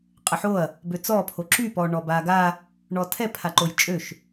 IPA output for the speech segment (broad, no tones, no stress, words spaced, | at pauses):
qʼəħoɐ̯ | bøt͡sɔ pʰoǁy pɔɳɔbaɡa | ɳɔtʰɛ pʰaǃojt͡ʃʼøʃ